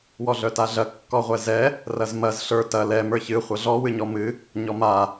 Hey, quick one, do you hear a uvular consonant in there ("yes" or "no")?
yes